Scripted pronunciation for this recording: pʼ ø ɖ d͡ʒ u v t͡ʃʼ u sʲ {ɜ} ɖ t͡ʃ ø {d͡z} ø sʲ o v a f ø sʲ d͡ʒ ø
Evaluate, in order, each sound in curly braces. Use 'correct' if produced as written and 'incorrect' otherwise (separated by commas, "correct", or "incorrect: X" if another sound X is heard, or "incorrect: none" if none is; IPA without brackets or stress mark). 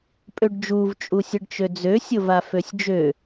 correct, correct